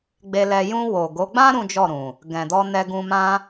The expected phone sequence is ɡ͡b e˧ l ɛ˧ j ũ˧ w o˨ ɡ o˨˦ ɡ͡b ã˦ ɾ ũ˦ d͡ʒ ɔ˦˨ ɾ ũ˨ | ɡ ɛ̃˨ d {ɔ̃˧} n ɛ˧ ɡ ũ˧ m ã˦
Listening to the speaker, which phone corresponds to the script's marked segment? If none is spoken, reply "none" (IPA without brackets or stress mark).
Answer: ɔ˧